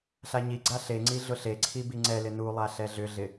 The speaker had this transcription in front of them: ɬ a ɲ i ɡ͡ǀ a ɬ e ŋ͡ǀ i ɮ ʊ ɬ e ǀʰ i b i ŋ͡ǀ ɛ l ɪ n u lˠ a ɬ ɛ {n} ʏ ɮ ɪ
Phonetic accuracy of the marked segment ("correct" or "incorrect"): incorrect